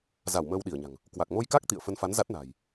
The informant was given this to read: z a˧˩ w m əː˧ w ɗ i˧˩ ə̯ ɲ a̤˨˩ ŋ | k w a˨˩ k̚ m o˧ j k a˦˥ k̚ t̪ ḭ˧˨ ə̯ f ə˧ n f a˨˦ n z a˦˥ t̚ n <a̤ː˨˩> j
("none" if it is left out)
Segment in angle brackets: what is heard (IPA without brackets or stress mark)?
a̤ː˨˩